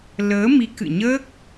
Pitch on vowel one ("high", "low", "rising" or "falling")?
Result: rising